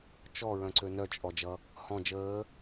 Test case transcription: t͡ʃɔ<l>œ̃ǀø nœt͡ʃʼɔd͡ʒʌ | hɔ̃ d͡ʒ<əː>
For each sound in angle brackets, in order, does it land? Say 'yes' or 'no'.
no, yes

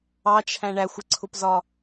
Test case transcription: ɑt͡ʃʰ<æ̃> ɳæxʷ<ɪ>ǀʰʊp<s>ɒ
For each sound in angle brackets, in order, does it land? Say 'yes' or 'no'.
yes, yes, no

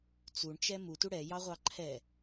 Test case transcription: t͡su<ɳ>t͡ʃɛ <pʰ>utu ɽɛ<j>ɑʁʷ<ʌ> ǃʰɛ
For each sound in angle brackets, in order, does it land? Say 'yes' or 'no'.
yes, no, yes, no

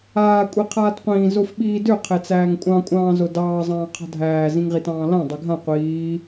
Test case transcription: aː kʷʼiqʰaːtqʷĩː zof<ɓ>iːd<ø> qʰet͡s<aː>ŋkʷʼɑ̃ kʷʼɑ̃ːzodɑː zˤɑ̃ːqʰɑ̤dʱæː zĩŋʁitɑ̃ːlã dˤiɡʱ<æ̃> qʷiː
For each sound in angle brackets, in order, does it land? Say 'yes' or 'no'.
yes, yes, no, no

